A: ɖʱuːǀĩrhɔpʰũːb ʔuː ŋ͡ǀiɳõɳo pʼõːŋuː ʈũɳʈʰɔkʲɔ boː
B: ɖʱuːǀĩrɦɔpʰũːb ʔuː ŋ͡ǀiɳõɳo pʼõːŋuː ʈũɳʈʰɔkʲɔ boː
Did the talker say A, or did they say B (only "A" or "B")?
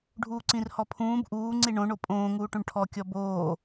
A